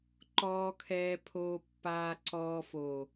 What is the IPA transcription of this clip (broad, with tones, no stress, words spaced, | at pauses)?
ǃɔː˨kʰɛː˨pʰoː˨ pːaː˨ǀɔː˨foː˨